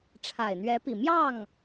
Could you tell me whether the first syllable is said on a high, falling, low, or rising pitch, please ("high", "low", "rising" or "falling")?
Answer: low